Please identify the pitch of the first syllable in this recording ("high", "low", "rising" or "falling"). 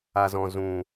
low